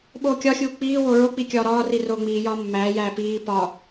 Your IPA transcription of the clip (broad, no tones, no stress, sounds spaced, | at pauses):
ɓ oː kʲ ɒ xʲ uː k͡p iː w o ɹ o k͡p i kʲ ɒː ɾ ɒː r i r oː ŋ͡m iː j ɒː mː æː j æː p iː p ɒ